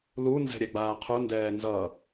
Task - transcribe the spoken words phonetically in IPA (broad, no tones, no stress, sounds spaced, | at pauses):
l u n z ɛ̤ ɾʲ ɛ ɡ͡b aː qʰ u n d ɛː n z ʌ